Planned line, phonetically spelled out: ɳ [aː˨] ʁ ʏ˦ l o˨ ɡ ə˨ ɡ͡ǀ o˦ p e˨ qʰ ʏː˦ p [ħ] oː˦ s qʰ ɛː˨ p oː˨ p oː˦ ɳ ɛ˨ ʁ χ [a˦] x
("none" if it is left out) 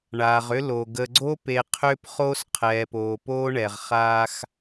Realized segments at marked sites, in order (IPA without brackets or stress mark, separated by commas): aː˨, χ, aː˦